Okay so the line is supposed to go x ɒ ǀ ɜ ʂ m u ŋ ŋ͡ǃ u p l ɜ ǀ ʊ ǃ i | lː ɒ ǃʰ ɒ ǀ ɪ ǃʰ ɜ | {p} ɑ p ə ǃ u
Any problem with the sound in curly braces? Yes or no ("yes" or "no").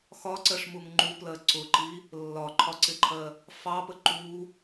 yes